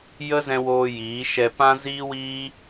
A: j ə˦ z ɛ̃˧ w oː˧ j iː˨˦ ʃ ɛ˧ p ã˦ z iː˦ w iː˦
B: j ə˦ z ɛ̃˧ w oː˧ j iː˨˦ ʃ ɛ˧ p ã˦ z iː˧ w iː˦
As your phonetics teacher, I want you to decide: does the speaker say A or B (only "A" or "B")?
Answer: A